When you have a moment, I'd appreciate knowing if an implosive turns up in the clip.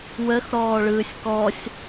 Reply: no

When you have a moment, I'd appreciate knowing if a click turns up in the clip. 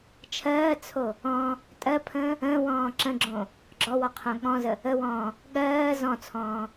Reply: yes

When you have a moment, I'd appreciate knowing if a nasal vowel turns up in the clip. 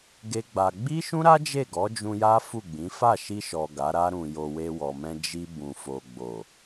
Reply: yes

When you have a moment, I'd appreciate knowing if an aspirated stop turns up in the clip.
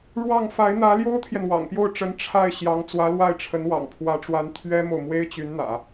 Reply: yes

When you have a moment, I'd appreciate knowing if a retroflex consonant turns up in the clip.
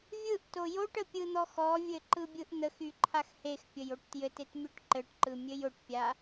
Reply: yes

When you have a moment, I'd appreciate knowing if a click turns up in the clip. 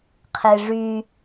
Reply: no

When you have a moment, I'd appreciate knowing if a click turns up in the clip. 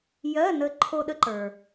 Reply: yes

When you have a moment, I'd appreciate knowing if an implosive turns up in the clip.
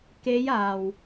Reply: no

